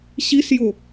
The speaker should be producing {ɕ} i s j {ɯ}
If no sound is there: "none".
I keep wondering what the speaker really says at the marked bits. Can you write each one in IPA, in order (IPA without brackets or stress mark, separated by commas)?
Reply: ɕ, ʊ